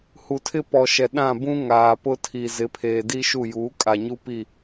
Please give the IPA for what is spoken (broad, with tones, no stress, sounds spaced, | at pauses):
h u˨ tʰ ɪ˦ p ɔ˨ ʃ ɛ˨ ɗ ã˦˨ b ũ˦ ŋ aː˨ p ʊ˦ tʰ i˨ z ɪ˨˦ pʰ eː˨ d i˦ ʃ u˦˨ j uː˨˦ kʼ a˨ ɲ u˦ p i˦˨